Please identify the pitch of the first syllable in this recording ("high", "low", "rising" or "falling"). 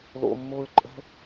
low